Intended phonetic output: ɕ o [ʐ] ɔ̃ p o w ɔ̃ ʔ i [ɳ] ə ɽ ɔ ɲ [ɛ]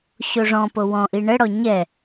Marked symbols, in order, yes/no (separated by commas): yes, yes, yes